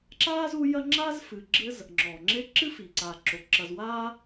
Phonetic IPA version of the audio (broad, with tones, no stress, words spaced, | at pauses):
ǁaː˥zu˦jɐ˦ ŋ͡ǁaː˥zfɨ˨ɡ͡ǁɘ˦z | ŋ͡ǁɔː˩ŋ͡ǁe˦ ǁɨ˥fi˩ǀaː˩ǁo˩ ǁɐ˨zwaː˦